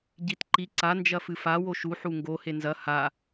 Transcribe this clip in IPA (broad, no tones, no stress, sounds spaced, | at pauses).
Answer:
ɟ i t ǃ i ǀ a n d͡ʒ ɐ f ɨ f a w o ʃ u ħ u ŋ ɡ o h e n z ɐ h a